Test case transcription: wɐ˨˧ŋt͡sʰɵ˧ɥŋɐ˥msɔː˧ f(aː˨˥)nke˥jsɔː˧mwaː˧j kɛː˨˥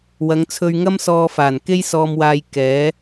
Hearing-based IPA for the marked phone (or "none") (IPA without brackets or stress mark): aː˨˩